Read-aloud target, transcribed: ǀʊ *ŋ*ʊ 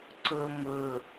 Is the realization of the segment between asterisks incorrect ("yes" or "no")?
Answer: yes